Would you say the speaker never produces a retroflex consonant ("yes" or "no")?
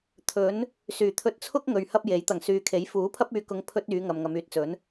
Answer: yes